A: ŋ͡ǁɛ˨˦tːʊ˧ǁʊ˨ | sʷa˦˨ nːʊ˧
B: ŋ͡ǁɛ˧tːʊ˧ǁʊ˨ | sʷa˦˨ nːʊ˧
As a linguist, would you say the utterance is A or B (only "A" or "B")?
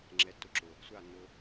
A